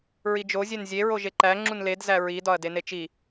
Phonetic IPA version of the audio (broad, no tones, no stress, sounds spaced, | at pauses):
ɹ i d͡ʒ o zʲ e n zʲ e ɹ o ʒ e ǃ æ ŋ͡ǁ u n l e d z æ ɹ i d ɒ ɐ̯ d e n e t͡ʃ i